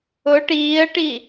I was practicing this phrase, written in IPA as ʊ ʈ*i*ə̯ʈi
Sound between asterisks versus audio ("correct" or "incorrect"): incorrect